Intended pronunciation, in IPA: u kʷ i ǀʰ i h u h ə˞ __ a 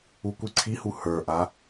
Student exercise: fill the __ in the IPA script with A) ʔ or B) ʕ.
A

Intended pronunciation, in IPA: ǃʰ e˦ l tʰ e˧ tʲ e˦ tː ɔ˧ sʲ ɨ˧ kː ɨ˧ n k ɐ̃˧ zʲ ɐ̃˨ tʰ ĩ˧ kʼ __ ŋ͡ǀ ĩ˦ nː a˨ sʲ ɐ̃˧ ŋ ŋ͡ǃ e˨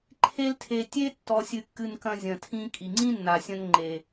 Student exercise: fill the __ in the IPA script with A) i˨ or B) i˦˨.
A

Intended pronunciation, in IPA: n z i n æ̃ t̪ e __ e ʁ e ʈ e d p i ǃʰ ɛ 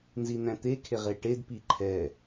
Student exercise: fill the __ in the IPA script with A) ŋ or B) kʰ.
B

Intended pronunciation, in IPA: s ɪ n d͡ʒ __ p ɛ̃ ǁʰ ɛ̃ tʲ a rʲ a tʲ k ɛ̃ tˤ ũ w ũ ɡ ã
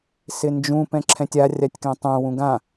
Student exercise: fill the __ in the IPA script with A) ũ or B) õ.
A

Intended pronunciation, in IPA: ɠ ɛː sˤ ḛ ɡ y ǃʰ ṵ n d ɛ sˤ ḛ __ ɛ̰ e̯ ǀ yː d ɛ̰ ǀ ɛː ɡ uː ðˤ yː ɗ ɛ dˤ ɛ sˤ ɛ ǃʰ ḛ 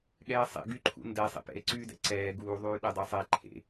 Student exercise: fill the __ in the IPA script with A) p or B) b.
A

